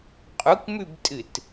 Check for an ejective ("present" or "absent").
present